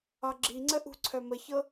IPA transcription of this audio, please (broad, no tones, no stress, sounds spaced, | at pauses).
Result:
ɒ ɡ͡ǁ i ŋ͡ǀ ə ʔ ṳ ǀʰ œ m ə ç ɤ